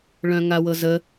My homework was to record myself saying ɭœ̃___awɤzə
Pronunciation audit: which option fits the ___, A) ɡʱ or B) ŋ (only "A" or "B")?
B